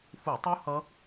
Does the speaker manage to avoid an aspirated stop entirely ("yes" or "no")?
yes